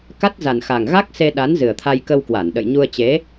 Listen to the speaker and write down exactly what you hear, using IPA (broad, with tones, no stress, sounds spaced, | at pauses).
k a˦˥ t̚ z a˨˩ n x a˨˩ ŋ ɣ a˦˥ k̚ s e˧ ɗ a˨˦ n z ɨ˨˩ ə̯ t̪ʰ a˧ j k ə˧ w k w a˧˩ n ɗ ə̰˧˨ j ɲ u˧ ə̯ t͡ɕ e˨˦